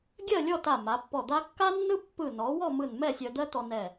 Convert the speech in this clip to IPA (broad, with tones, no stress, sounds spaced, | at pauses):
ɡʲ ɜ˥˧ lʲ ɔ˥˧ t a˧˩ m a˩˧ pː ɔ˧˩ d̪ a˥ kː a˥ nː ɯ˥ pː ɯ˧˩ n ɔ˩˧ w ɔ˥˧ m ɯ˧˩ n m ɛ˥˧ sʲ œ˧ d̪ ɜ˥ t̪ ɔ˧ n ɛ˧˩